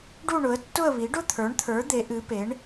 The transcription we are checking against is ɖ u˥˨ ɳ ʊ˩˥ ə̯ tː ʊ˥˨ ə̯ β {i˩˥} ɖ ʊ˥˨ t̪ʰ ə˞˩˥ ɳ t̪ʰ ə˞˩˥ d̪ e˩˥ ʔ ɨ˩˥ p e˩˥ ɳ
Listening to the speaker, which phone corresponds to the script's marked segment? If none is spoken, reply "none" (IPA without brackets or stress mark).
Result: i˩˥